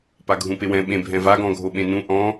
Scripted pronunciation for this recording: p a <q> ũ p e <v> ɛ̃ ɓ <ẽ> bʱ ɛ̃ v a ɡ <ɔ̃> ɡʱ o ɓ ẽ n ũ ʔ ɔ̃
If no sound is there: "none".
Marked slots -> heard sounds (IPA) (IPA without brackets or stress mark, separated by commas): ɡʱ, w, ẽ, ɔ̃